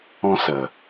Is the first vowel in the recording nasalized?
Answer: yes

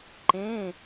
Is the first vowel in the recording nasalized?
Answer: yes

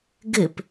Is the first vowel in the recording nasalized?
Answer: no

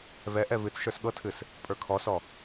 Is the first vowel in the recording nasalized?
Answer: no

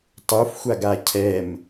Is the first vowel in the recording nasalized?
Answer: no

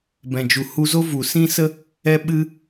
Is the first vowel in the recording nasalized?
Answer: yes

